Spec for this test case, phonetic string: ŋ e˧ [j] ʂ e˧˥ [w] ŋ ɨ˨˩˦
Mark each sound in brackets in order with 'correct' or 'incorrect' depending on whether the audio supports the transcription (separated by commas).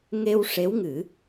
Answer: incorrect, correct